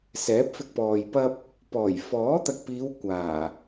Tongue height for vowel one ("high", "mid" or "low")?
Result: mid